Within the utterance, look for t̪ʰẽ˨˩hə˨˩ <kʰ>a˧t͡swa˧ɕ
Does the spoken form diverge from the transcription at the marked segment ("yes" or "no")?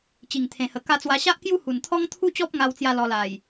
yes